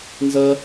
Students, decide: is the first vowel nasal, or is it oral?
oral